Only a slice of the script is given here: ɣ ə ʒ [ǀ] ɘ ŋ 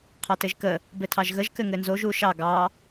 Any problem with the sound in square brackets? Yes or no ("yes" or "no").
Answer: yes